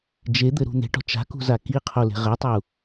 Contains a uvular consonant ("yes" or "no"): yes